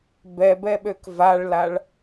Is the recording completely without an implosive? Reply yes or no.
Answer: no